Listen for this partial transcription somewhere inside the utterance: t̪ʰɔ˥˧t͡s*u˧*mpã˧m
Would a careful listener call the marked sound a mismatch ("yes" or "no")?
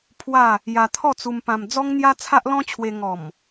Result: no